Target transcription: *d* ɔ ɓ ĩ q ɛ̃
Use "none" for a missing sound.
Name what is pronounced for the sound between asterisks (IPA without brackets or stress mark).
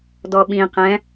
d